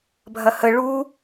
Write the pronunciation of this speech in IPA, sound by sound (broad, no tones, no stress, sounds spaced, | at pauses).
bʱ ɐ h ə ɭ u